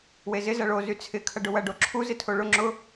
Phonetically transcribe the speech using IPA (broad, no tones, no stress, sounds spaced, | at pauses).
w e z ɪ z ɐ ɭ o z y t͡sʰ ɪ kʰ ɐ ɖ ʊ w ɐ ɖ o ǁʰ u z ɪ tʰ o ɭ ʊ ŋ͡ǁ ʊ